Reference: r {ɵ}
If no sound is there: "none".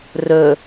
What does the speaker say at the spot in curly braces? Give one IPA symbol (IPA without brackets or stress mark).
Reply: ɵ